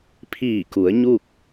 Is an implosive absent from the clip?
yes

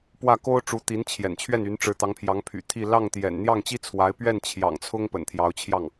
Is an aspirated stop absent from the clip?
no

